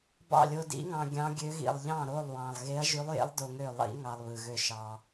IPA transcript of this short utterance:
bɑ̰˥˩lʲo˧dḭ˧˥ŋɑ̃˧ ɡʲɑ̃˧˥ɡʲø˧˥ɣḭ˨˩lˠ ʎɑ̃˥˩ɾo˥˩lˠ wɑ̃˨˩lˠɣe˧˥ɐ̯ʒy˧˥lˠjḛ˧˥lˠ do˧ŋø˥˩lˠḭ˧˥ ŋɑ˧lˠβɯ˨˩ɣø˥˩ ʃɑ˧

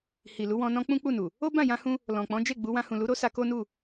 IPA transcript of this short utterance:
hi˨lu˨˦wɔ̃˧ nɔ̃˧ k͡pũ˦k͡pu˦˨nu˨ | o˦bã˦˨jã˧hũ˧ | lɔ̃˨ k͡pɔ̃˨˦d͡ʒe˦˨ ɡ͡bu˨˦wã˧ hũ˨lu˨˦ɾo˦sa˧ ko˦nu˦˨

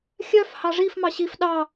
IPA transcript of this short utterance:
xʲœf hɑʐif mɑɕif ɗɑ

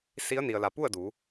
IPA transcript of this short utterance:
si˧˥ə̯ni˩ə̯la˩ pu˥˨ə̯du˩˧

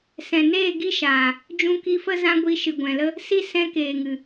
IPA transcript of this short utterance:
sɛ̃˨neː˦˨ ɡi˦ʃaː˨ | d͡ʒũ˧ki˧fə˦ zã˧ ɡʷi˧ ʃɨ˨ɡʷɛ̃˨lə˧ | si˧ sɛ̃˧keː˨ŋɨ˨

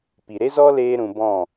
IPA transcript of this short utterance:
pi˨ɾe˦zɔ˦ leː˦ɾũ˧ bɔ̃˦˨

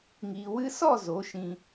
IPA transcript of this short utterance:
ŋiː˨ wɨ˧sɔ˦˨ zo˨˦ʃĩ˧

